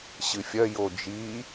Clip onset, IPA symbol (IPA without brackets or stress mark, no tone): ɕ